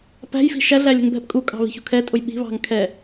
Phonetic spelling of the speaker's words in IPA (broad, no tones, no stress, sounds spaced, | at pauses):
p æ̤ j f i̤ ʃ æ ɮ æ lʲ ɛ̤ ŋ bʱ ɛ p kʼ u kʼ ɑ̤ β i̤ ç ṳ kʰ ɛ tʼ ʊ j ɓ i̤ β ɑ̤ ŋ kʰ ɛ